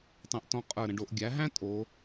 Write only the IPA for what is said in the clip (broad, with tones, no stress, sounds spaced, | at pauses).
tˤ æ̃˧ ʔ t ɔ̃˧ qʼ ə˞˧˩ ɾ ə̃˧ ɖ o˩˧ ʔ ɡʲ æ˩˧ ɦ æ̃˥ tʼ o˩˧